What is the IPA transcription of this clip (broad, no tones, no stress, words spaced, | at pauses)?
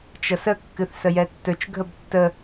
t͡ʃʌsə kːɨθsəjɛtːɵt͡ʃ ɡʱəbtːə